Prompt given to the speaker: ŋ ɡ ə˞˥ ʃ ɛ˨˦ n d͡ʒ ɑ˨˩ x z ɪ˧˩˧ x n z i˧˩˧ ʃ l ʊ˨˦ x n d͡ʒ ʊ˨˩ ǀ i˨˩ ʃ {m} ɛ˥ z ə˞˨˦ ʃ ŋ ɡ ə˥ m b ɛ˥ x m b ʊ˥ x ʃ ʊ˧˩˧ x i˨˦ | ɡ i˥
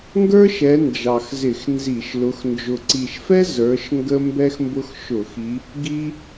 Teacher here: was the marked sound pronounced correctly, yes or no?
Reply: no